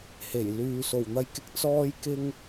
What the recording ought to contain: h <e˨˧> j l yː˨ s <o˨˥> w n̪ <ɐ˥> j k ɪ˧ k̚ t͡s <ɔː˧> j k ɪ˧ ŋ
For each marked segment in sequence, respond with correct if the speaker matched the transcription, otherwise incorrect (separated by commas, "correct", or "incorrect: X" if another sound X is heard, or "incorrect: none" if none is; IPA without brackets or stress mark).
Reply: incorrect: e˨˩, incorrect: o˨˩, incorrect: ɐ˧, correct